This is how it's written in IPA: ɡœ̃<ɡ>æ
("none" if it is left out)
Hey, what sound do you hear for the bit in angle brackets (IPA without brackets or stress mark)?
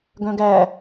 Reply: ɡ